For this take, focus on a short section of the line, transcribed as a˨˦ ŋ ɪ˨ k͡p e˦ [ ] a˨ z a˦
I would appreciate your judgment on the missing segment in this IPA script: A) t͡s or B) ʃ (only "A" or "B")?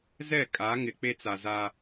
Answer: A